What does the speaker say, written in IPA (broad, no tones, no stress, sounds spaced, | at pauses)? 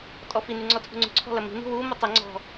tʼ ɔ f i n y ŋ͡ǀ ɔ tʰ ṳ ŋ͡ǀ ṳ ǀʰ ɔ̤ l ɐ m i̤ n i̤ w u m ɤ tˤ ɐ ŋ͡ǀ ɔ̤